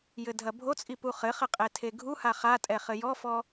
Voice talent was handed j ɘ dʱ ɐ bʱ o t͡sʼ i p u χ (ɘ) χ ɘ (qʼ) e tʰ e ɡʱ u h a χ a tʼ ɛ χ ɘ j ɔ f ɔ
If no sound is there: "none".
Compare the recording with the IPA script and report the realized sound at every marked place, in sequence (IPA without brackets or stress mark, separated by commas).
ɘ, qʼ